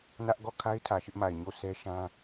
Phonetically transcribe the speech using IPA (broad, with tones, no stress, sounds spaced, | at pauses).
n ä˦ ʔ ɡ ɔ˦˨ kʰ a˦ ɪ̯ tʰ ä˨ ʃ ɪ˦ ʔ m a˨ ɪ̯ ɲ o˦˨ s ɛ˦ ʃ ã˦